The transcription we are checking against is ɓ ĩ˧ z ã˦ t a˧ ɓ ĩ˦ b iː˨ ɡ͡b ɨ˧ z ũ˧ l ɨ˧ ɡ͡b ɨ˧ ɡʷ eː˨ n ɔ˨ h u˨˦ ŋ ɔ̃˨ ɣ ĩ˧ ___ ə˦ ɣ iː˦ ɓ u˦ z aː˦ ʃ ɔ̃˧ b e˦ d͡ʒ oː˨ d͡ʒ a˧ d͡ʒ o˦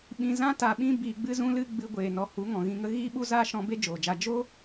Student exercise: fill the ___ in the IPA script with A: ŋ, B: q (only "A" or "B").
A